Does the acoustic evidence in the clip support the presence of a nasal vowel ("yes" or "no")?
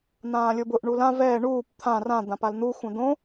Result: yes